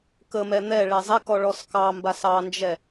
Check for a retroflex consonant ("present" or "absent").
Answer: present